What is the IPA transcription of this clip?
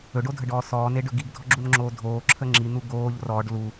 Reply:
ɵ ɖ o dʱ ə ɖ ɔː s ɔː n e ɖ ɵ ɡ i ɡ dʱ ɔ ɡ͡ǁ u n ŋ͡ǁ oː dʱ oː ǁʰ ə ŋ͡ǁ i n̪ u ɡ oː ʎ r ɔː ɖ l u

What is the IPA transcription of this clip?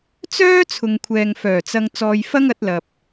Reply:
t͡s œː˥ t͡sʰ ʊ˨ ŋ kʷʰ ɛː˨ ŋ f œː˨˩ t͡s ɐ˧ ŋ t͡s ɔː˧ j f ɐ˥ ŋ ɐ˨˥ t̚ l ɐ˨ p̚

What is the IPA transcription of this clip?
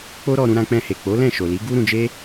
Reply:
k͡p o˦ ɾ ɔ˧ ɾ ũ˧ ɾ ã˧ k͡p ɛ̃˧ h e˨ k͡p o˨˦ l ɛ̃˦˨ ʃ o˨ l i˨˦ ɡ u˦ ɾ ũ˧ d͡ʒ e˦

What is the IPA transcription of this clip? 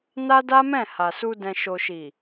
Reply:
n a˦ d a˦ m ɛ̃˦˨ h a˨ s u˧ d ɛ̃˨ ʃ o˨ ʃ i˨

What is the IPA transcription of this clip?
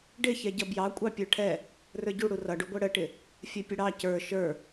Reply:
ɖ ɪ ç ɛ ɟ ʌ b j ɑ kʷʼ ɑ pʲ ə˞ ʈʰ ɛ | r ə˞ ɟ u ɽ u r ʌ ɖ u ɡʷ ɛ ɽ ə ʈ ɪ | fʲ ɛ pʲ ə ɽ ɑ c ə˞ ʃ ə˞

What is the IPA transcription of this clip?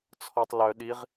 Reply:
t͡sʰ ɔ tˤ l œ ɗ i ʁ

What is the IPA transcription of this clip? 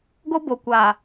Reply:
ɡ o˦ b o˨ kʷ aː˨

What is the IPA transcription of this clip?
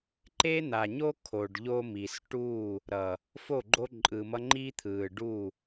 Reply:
ǃ e˦ n̪ a˨ ɲ o˦ kʰ o˨ ɖ ʎ o˦ m i˨ s ʈ uː˦˨ | ɾ ʌ˨ | f o˦˨ ɡ͡ǃ o˦ ǃʼ ɯ˨ m ʌ˦ ŋ͡ǃ i˦ t̪ʰ ɯː˨ ɖ u˦˨

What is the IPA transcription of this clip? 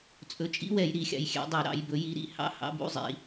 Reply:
t͡sʼ ɵ˨˦ t͡ʃʼ ḭ˧˥˧ w ɛ˨˩˦ j ɾ i˨˩˦ xʲ ɑ̰˨ j xʲ ɛ̰˨˩˦ dˤ ø˨˩˦ ɾ ɑ̰˨˩˦ j b ɵ˨˦ j i˨˦ ɾ ḭ˨˦ h ɑ̰˧˥˧ h ɑ̰˧˥˧ b ṵ˨˦ zˤ ḭ˨˦

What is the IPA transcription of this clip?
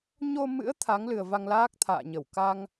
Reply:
ɲ o˧ m ɨ̰˧˥ ə̯ t̪ʰ a˨˦ ŋ l ɨ˨˩ ə̯ v a˧ ŋ l aː˦˥ k̚ t̪ʰ a̰ː˧˨ ɲ ə˧˩ w k a˧ ŋ

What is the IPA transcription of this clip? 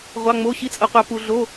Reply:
ʁʷ ɑ˧˥˧ ŋ͡m o˧˥˧ ɕ i˧˥˧ t͡sʼ ɤ˧ qʷ ɑ˧ p u˧ ɮ o˧˥˧

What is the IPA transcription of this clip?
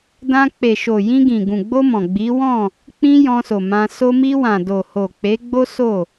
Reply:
d ã˧ k͡p e˨ ʃ o˨ j ĩ˧ ɡ ĩ˨ ɡ ũ˨ ɡ͡b o˧ m ɔ̃˨ ɡ͡b i˨˦ w ɔ̃˦˨ | k͡p ĩ˦ j ɔ̃˧ s o˨ m ã˧ s o˧ m i˧ w ã˨ d o˨ h o˨ k͡p e˨˦ ɡ͡b o˦ s o˦˨

